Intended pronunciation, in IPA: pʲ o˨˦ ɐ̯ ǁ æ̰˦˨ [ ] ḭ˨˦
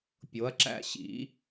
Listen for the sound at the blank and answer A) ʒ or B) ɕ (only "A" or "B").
B